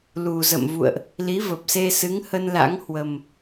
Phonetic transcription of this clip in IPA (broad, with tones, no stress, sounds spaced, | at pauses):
l u˨˩ z ə̰˧˨ m v ṵ˧˨ ə̯ ʔ | l i˨˦ v ə˨˩ p̚ s e˧ s ɨ˨˦ ŋ h ə˧ n l a̰˧˥ ŋ h w ə˨˩ m